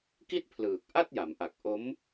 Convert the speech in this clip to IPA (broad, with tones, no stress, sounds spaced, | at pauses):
k i˥˩ t̚ pʰ l ɯː˨˩ k̚ ʔ a˥˩ t̚ j a˩˦ m ʔ a˨˩ k̚ ʔ o˦˥ m